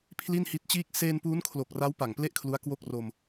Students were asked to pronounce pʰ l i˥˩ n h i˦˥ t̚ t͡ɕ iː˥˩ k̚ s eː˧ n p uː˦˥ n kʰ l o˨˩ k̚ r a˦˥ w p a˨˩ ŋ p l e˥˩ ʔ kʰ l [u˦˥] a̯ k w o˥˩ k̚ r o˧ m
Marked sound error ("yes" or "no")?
no